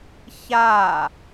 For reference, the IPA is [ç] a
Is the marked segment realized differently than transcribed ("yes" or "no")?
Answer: no